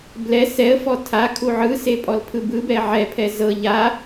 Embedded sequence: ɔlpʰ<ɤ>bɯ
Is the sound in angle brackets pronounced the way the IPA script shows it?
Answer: no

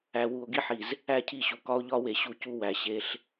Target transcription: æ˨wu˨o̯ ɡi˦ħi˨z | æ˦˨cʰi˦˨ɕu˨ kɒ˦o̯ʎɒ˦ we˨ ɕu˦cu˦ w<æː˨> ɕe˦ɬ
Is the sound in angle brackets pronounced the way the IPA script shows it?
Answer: no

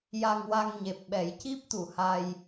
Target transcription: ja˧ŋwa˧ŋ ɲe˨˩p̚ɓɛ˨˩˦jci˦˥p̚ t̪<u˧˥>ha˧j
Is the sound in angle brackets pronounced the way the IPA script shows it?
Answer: no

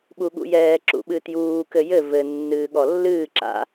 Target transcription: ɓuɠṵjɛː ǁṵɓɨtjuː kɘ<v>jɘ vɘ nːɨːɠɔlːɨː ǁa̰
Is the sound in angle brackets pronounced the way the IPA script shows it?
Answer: no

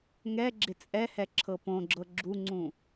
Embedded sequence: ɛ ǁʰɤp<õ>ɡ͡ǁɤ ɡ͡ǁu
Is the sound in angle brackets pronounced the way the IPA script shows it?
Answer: yes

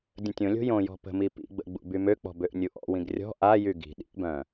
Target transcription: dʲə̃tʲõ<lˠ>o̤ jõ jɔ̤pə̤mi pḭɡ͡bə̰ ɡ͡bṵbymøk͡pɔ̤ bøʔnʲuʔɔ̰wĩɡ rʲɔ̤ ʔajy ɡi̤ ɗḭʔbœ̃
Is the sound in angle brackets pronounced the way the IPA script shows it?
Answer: no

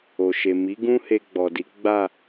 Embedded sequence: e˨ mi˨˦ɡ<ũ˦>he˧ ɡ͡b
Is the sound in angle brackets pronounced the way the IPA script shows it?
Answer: yes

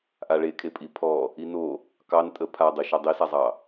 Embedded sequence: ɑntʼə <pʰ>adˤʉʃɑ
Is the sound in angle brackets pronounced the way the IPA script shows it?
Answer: yes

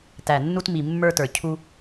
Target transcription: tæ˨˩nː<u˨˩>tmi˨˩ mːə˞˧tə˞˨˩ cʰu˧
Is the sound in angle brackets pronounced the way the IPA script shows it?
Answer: no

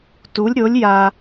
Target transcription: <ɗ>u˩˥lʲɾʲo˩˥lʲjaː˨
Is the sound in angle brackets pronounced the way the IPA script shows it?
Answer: no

